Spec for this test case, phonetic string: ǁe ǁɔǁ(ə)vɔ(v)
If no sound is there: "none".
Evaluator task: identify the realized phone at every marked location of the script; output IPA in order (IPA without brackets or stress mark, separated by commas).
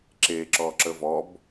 ə, b